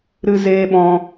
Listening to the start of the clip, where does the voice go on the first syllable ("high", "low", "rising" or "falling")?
high